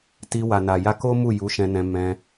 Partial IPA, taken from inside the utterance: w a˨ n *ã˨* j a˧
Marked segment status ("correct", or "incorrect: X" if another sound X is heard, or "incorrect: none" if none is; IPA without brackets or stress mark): incorrect: a˨